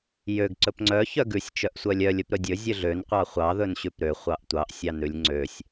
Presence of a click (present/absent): present